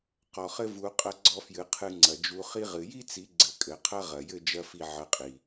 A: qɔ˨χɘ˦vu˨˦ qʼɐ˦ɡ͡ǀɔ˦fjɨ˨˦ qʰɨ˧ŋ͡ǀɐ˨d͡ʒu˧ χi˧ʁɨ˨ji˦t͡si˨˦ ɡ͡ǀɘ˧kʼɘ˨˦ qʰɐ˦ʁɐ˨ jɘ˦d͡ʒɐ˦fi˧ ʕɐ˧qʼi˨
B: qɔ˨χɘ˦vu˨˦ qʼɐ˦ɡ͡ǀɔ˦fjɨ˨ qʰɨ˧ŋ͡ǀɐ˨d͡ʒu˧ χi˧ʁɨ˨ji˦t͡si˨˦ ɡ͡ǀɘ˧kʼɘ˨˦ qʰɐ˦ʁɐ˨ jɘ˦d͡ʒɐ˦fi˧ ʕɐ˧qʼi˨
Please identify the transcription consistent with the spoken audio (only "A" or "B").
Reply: A